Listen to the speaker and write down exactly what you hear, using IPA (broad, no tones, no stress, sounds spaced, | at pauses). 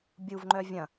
bʲ u v ŋ͡ǃ œ vʲ ɐ̃